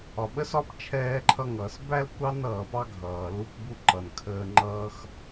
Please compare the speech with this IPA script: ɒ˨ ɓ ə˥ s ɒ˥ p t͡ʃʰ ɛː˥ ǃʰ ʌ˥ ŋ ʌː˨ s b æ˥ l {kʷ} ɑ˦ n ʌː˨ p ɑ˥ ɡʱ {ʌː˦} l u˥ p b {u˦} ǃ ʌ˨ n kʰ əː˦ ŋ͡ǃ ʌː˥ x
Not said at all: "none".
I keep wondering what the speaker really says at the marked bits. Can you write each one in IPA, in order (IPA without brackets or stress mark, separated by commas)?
kʷ, ʌː˩, u˥